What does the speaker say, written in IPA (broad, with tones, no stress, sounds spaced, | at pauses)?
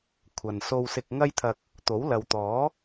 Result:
kʷʰ ɐ˨ n s o˧ w s ɪ˧ k̚ ŋ ɐ˥ j t̪ʰ ɐ˧ k̚ | t̪ o˨˥ w l ɐ˨ w t̪ ɔː˨˥